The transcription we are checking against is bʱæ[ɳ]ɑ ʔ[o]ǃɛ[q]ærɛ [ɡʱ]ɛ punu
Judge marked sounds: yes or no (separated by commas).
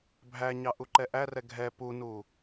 no, no, no, yes